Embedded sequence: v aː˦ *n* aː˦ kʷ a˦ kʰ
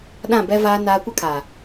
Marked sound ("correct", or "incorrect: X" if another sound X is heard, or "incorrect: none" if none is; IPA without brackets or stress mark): correct